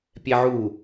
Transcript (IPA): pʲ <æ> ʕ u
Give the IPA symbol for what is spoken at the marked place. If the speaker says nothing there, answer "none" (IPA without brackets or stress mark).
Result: ɛ